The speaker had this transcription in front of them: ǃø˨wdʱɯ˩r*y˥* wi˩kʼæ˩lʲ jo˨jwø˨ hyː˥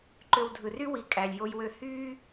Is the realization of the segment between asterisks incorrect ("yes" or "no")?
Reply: yes